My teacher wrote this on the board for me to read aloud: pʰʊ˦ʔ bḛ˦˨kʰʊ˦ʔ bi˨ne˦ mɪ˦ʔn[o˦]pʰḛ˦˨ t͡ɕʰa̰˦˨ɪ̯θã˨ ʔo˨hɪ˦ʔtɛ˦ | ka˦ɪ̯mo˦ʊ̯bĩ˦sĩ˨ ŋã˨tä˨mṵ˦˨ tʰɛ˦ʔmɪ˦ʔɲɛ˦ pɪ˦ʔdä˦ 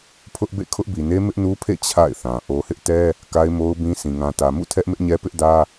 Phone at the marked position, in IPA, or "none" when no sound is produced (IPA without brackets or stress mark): u˦